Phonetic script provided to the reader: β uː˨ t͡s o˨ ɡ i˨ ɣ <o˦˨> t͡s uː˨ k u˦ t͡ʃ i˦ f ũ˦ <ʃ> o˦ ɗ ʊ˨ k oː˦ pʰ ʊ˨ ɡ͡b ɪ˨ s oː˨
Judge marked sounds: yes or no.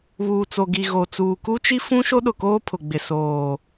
no, yes

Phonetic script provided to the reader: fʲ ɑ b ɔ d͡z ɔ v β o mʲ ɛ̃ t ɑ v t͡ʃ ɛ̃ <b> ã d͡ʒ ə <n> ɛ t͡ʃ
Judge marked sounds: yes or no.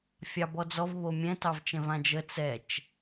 no, no

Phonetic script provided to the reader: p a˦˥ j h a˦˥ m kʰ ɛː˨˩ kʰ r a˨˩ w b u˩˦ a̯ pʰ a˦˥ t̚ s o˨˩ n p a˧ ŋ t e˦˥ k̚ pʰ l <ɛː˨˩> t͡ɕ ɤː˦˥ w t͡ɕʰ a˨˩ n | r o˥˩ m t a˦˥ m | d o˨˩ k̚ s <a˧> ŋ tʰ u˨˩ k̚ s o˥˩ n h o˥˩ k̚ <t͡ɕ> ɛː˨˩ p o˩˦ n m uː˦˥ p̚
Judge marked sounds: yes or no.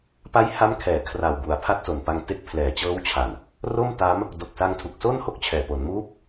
yes, yes, no

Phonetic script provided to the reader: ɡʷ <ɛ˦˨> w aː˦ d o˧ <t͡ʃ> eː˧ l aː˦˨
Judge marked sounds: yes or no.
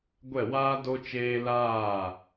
yes, yes

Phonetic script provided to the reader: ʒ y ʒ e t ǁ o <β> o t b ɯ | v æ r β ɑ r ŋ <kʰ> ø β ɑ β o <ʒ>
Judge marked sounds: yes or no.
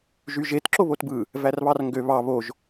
yes, no, yes

